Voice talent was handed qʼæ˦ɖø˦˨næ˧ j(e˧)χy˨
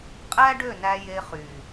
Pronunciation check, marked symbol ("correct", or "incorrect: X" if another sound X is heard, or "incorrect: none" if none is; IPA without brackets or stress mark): correct